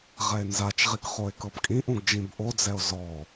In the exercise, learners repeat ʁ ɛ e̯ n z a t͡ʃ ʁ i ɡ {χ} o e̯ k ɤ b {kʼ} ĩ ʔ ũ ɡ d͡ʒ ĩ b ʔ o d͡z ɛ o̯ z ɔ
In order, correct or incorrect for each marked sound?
correct, correct

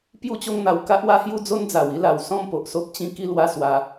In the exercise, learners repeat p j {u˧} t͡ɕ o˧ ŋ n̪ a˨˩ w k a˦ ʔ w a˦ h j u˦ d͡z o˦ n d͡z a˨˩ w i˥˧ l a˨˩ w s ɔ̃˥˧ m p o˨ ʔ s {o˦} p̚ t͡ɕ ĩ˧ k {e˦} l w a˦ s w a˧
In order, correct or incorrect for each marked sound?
correct, correct, incorrect: i˦

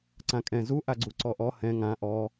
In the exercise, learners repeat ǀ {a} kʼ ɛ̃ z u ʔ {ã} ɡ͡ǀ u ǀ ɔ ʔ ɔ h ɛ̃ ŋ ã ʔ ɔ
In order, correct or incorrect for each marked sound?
incorrect: ã, incorrect: a

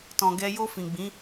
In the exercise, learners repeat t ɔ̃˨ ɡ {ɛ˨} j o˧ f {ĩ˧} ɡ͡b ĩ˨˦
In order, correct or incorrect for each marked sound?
incorrect: ɛ˧, incorrect: ĩ˨

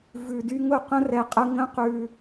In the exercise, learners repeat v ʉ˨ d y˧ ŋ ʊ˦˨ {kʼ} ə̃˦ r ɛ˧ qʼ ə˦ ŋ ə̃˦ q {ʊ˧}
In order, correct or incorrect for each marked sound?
incorrect: q, incorrect: ʉ˧

